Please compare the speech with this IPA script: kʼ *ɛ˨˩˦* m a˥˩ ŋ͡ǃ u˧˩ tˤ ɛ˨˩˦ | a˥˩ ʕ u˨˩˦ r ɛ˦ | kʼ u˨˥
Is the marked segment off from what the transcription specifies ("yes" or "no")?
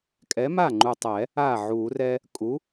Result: yes